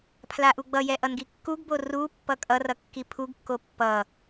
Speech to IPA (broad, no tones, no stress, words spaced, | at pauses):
pʰlaʔuɡ͡bʌjɛ ʔʌnɡikːuɡbo ru pːʌkʼʌrʌ kːipʰuɡkːo pːʌ